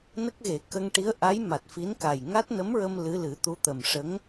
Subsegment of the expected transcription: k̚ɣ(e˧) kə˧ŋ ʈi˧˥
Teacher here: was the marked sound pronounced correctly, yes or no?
no